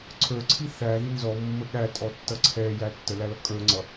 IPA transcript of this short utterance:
ǀʰə˞ǀʰi θæði nzɔmːə ɠætʼɔtːʌ ǀʰɛjæ tːəlælʌ kʼə˞ŋ͡ǀʌ

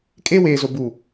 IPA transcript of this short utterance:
kʼe˦weː˨zo˨ bu˨

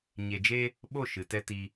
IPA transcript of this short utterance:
ɲe˧d͡ʒe˦ | ɓo˦˨ʃɨ˨tɛ˧ ti˧

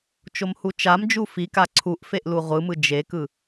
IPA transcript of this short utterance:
t͡ʃomhut͡ʃamd͡ʒu fika ǀʰuʔfeʔ luʁʷɯmɯ d͡ʒekɯ

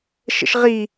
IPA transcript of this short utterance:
ʃə̰ʃʁi

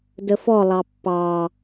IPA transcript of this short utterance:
dəfɔ lˠɑpːɑ

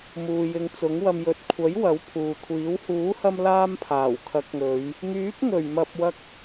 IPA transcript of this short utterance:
muː˨jɪ˨˧ŋt͡sʊ˨˥ŋwɐ˧m jɵ˨t̚kʷʰɐ˨˥j wɐ˨˥wpʰuː˨kʷʰiː˨˥w huː˨˥hɐ˧m laː˥mpʰaː˨˩w kʰɐ˨˥k̚ŋɵ˨˧ɥ | ŋyː˨˥p̚ŋɵ˨˩ɥ mɐ˨p̚ wɐ˧k̚

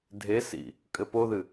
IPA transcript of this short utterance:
dʱesḭ | kʼɘpoðɨ

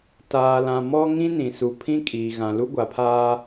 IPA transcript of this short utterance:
taː˨lã˨ mɔ˦ŋĩ˦ nĩ˨su˨ pʰĩ˦kʼiː˨ ɣã˨lu˦ɡʷa˨pʰaː˦

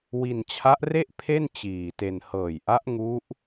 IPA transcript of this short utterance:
wi˧nt͡ɕʰa˦˥ʔre˥˩ʔ pʰe˥˩n t͡ɕiː˨˩te˧n hɤː˨˩jʔa˦˥ʔŋu˦˥ʔ

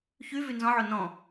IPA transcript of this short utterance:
çy vynzɔ̃ʕo nɔ̃

